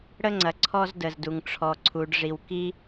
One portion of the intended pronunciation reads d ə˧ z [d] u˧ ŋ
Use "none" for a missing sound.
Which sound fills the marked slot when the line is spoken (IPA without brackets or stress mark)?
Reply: d